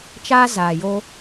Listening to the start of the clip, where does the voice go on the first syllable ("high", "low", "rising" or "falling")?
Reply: high